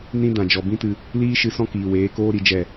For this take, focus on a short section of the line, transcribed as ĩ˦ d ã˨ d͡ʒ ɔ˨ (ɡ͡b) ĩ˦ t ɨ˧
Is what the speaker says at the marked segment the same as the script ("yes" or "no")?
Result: no